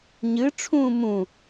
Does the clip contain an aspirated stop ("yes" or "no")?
yes